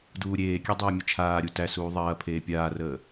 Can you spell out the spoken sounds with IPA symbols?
d uː ɾʲ eː kʲ ɛ dˤ ɐː mʲ ə t͡ʃʰ aː ɾʲ u t æ s uː ðˤ ɐː pʰ eː pʲ aː r əː

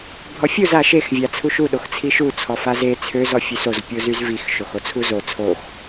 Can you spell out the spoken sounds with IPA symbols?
bʱ ɔ fʲ u z a ʃ e x vʲ a t͡sʰ u ʃ u ɗ o x t͡sʰ i ʃ u t͡sʰ ɔ f a z e t͡sʰ ø z ɔ fʲ ø s o z pʲ o z y z v i x ʃ o x o t͡sʰ u z o t͡sʰ o x

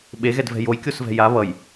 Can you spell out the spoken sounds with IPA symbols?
ɓ e ɣ ɛ d v ɛ̤ j o j kʲ o s v ɛ̤ j a β ʌ j

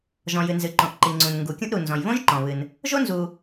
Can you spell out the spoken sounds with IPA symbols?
ʒ ɔ̃˩ j ɨ˩ n z ɨ˩ ǃ õ˩ ʔ ǃ i˩ ŋ͡ǀ ũ˩ n ŋ ɡ u˩ kʲ ũ˥ ʔ ɾ u˩ n z ɔ̃˩ j β õ˥ ʒ ǃ ɔ̃˩ β ɨ˩ n | ʒ o˥ n z u˩

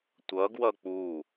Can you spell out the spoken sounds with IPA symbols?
tʷ ʌ ɡ w ʌ k͡p u

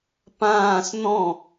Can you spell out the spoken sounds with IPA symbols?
p ãː s n̪ ɔ̃

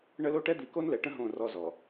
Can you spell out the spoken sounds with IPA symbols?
ɳ ə˦ l o˦ ʈ ɛ˦ d̪ i˨˦ k o˦ n l ɛ˨ ʈ ə̃˦ ɦ õ˦˨ r ɔ˦ z ɔ˨

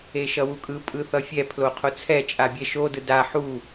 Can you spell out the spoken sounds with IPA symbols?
e ʃ ʌ w u kʼ ɯ pʼ ɯ θ ʌ fʲ ɛ pʰ l o qʰ o t͡sʰ ɛ t͡ʃʼ a bʲ ɛ ʃ o d ɯ d a ħ u

